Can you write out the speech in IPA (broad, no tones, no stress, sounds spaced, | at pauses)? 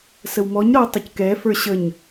s ə w m ɔ ɲ ɾ ɔ ə̯ tˤ ʊ c k ɛ f ə˞ ɕ ə ɲ